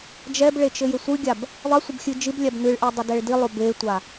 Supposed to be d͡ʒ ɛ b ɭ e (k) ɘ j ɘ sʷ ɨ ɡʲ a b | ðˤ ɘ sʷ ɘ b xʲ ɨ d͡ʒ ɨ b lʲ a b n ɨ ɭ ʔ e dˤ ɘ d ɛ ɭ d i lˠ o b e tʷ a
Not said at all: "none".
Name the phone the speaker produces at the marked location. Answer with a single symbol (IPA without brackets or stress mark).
t͡ʃ